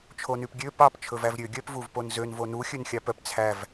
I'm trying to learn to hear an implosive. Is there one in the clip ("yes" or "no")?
no